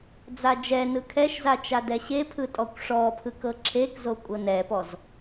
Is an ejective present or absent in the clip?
present